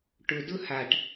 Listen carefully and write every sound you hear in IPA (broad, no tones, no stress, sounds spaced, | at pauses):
ʈ ʊ d ʊ h a ʈ